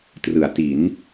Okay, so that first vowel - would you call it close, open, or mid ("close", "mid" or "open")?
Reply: close